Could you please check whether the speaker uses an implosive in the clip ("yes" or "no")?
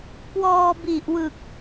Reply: no